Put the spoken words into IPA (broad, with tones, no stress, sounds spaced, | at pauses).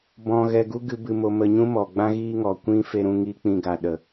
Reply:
b ɔ̃˧ ɣ ɛ˧ ɡ u˦ ɡ ɨ˦ b ɨ˧ m o˧ m ə˧ ɲ ũ˦ m ɔ˨ ɡ͡b ã˦ ɣ iː˦ ŋ ɔ˨ kʷ ĩ˦ f e˧ ɾ ũ˧ ŋ iː˧ k͡p ĩ˧ ɡ a˨ ɗ ə˨